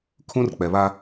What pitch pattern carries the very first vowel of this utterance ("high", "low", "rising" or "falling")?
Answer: high